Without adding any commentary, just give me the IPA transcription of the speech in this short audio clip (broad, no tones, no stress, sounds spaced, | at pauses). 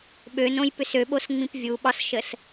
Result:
ɓ ø n õ j p ʏ s ø ɓ o s ŋ͡m ĩ p vʲ u ɓ ɒ s ʃ ə s